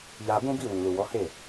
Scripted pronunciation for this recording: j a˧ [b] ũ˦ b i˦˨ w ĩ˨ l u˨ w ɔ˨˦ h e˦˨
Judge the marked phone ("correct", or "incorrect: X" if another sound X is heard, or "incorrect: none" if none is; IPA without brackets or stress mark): correct